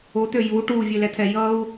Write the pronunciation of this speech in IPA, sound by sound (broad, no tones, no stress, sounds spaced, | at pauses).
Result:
o t̪ ø j u ʈ u vʲ ø l ɛ t̪ʰ ɛ j ʌ u̯